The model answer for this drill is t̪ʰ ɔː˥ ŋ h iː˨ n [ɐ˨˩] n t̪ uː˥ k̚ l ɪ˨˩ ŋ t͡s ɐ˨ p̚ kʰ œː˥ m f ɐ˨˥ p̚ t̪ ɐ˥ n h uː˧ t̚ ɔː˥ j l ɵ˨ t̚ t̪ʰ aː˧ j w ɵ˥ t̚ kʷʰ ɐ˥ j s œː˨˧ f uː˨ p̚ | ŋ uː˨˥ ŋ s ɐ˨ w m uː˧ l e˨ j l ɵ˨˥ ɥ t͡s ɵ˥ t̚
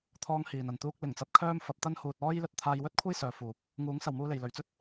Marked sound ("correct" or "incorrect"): incorrect